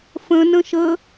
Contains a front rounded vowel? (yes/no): no